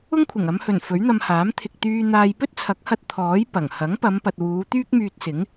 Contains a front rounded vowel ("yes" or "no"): yes